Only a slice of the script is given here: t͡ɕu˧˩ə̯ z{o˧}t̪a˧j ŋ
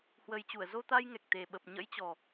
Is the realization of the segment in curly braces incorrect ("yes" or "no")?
no